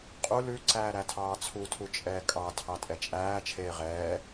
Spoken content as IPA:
qʼ u l ʉ ǀ æː ɾ æ tʰ ɑː t͡sʰ u tʰ u t͡ʃʼ ɛː kʼ ɑ tʰ ɑ tʼ ɛ t͡ʃʼ æː t͡ʃʰ eː ʁ ɛː

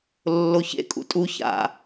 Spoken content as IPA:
lː o ç ḛ kʼ ṵ tʼ u ç a̰

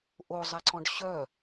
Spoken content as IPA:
ʔ o zˤ ɛ ǀ ɔ̃ ɖ ɕ œ

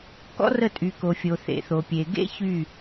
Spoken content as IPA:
k ɔ̰˦ r ə˦˨ tʼ y˨ k o˨ fʲ o˨ θ ḛ˨ θ o˨ pʲ e˨ ɡ ḛ˦ ç y˦˨

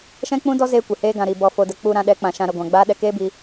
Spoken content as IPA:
ʃ ɛ̃˦ k͡p ũ˦ d ɔ˦ z eː˦ kʷ e˨ h eː˦ ɡ ã˧ ɾ i˨ b ɔ˧ f o˧ d ə˧ k͡p u˧ ɾ ã˧ ɗ ɛ˨˦ k͡p ã˨ ʃ ã˧ ɾ ə˧ ɡʷ ã˨ ɡ͡b aː˦ ɗ ɛ˧ k eː˦ b i˧

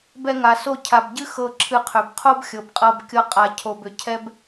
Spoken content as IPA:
b ɛ˧ ŋ a˨ s o˦˨ cʰ a˨ b ɟ ɨ˦ x ɤ˧ ǁʰ ɨ˧ qʰ ʏ˨ b qʰ o˦ b xʲ ɤ˨ b qʼ ɤ˧ b kʲ ɤ˦ qʼ a˧ cʰ o˨ b ʏ˨ cʰ ɛ˦ b

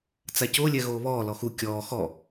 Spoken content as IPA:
t͡s a c o lʲ ɛ ɣ oː β ɔː l ɔ x u kʲ ɔː x ɔ

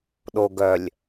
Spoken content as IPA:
ɗ o ɡ œ lʲ

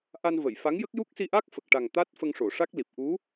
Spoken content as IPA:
ʔ a˧ n v ə˨˩˨ j f a˧˥ ŋ j ə˦˥ k̚ j u˦˥ k̚ s i˧ ʔ a˦˥ k̚ f ə˨˩ k̚ ʈ a˨˩ ŋ t̪ a˦˥ t̚ f ə˧ ŋ ʂ o˨˩˨ ʂ a˦˥ k̚ l i˨˩ p̚ ʔ u˧˥

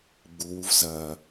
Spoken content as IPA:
ɡ͡b u w u v z ɐː

